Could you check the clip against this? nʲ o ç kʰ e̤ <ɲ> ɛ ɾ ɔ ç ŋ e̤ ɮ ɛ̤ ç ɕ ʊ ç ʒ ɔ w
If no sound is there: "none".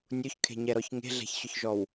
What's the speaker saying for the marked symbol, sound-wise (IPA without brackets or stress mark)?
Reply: ɲ